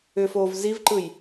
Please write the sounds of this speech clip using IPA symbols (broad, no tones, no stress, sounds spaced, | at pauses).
ʏ f oː v z i v ǃ ɯ j